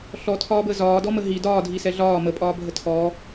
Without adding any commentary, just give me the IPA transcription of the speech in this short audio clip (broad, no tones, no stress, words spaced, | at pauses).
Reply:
ɬɔtʰɒːbəː zɒːdɔmə ɦi dɒːdʱisɛ ɮɒː məpʼɒːbʱə tʰɔː